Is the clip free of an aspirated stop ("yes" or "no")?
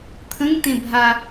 no